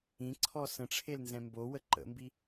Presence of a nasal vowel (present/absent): present